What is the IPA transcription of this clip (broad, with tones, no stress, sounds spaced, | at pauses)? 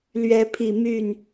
l ɥ ɛ˨˦ pʰ i˨˩ m y˥˨ n